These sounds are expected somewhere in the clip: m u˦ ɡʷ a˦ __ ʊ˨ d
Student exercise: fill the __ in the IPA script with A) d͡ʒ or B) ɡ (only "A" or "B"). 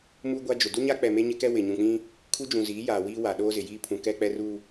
A